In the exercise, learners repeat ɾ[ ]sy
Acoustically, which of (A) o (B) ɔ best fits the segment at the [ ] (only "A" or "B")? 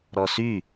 B